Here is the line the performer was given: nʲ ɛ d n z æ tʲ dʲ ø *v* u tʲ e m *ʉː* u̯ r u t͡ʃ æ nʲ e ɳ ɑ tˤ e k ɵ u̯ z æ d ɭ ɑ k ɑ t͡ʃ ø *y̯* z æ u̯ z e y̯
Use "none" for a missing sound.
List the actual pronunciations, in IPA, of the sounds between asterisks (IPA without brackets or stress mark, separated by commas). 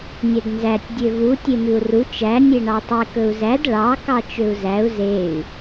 v, ʉ, u̯